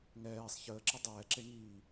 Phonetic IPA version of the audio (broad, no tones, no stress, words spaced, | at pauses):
ŋɛːsˤ çəː ǁədˤɛːǁeŋiː